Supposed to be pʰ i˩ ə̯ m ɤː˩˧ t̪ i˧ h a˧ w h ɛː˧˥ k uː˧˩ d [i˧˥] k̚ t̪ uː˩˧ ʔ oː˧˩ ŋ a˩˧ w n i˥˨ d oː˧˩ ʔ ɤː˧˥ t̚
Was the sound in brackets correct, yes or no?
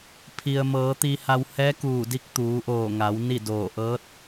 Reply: no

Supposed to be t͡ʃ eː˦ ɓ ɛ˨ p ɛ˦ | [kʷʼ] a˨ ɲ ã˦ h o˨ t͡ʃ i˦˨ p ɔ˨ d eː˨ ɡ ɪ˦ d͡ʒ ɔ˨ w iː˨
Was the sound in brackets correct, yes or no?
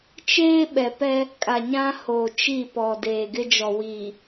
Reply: no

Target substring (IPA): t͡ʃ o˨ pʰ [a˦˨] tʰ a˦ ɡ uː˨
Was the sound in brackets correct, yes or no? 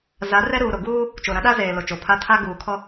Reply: yes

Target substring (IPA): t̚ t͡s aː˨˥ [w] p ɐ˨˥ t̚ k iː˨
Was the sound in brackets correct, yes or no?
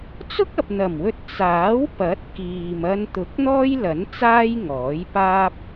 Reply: yes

